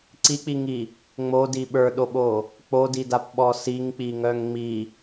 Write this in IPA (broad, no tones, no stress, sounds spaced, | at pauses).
ǀ i k͡p i ŋ i | ŋ͡m o d i ɓ ə˞ ɗ o ɓ o | k͡p o d i d a p ɓ ɔ s i ŋ k͡p i ŋ œ ŋ ŋ͡m i